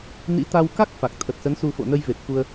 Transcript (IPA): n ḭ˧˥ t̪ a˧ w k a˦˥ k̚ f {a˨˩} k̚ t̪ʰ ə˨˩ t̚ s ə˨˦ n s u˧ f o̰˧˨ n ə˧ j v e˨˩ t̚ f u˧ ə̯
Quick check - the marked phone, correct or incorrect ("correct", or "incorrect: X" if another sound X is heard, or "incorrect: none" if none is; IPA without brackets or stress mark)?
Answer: correct